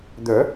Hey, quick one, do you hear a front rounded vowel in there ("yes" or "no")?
yes